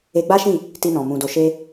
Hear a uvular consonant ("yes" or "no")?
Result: no